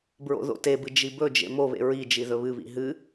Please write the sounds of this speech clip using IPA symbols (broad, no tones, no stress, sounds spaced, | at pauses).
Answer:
b ɹ o̰ ð o̰ t e b ɨ d͡ʒ i b ɵ d͡ʒ ḛ m o β ḛ ɹ i d͡ʒ i ð ɵ β ɨ β ḭ ɦ ɨ